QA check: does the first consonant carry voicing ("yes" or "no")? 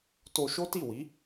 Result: no